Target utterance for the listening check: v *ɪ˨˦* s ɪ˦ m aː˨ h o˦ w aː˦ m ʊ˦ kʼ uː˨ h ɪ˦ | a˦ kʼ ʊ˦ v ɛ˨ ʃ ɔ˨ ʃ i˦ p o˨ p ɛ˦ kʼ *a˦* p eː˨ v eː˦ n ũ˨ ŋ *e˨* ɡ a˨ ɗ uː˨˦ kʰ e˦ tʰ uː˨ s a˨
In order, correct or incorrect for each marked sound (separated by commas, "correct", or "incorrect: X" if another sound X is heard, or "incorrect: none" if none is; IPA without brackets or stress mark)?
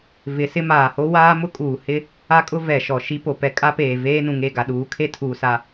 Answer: correct, correct, incorrect: e˦˨